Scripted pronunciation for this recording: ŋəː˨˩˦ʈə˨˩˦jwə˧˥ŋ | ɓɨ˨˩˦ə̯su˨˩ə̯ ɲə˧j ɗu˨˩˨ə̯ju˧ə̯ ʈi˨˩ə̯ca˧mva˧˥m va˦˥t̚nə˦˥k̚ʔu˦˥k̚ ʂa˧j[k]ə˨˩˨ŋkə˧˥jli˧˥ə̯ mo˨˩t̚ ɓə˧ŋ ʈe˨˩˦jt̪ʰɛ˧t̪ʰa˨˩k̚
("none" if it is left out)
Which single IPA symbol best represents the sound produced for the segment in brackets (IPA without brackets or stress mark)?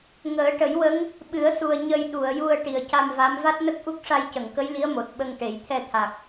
c